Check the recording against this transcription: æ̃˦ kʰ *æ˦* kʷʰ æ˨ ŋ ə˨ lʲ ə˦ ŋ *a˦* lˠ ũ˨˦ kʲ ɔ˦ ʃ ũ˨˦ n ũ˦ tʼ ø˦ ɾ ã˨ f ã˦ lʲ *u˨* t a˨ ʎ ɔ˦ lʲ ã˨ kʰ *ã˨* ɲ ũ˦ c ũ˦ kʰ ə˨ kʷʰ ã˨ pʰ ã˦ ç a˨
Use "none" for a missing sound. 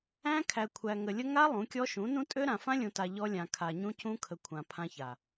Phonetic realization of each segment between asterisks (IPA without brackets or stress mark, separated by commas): æ˨, a˦, ũ˨, a˨